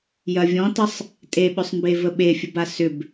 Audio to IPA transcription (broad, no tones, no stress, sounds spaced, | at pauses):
j ɐ vʲ ɔ̃ t ə sˤ | tʼ e ɓ ʏ sˤ m b e v ə ɓ e fʲ ə b a s ʏ b